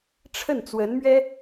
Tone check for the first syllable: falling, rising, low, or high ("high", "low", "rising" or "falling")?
falling